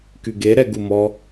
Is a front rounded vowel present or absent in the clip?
present